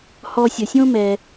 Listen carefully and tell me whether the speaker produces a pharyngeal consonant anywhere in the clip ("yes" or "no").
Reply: no